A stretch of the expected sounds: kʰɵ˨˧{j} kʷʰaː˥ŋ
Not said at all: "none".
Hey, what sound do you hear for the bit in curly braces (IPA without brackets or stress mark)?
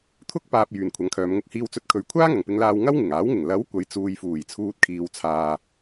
ɥ